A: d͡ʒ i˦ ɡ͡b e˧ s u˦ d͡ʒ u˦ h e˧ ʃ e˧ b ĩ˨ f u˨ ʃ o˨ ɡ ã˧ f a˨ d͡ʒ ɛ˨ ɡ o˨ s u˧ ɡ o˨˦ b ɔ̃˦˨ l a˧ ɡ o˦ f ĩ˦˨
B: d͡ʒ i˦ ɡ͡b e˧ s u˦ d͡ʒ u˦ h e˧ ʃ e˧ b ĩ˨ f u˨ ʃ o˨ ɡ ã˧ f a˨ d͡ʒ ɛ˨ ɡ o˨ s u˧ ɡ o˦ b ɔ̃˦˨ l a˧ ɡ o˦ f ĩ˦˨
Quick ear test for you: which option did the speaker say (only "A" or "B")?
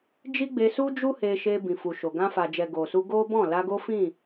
B